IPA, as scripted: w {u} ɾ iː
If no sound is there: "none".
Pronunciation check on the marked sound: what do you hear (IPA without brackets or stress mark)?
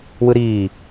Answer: ɯ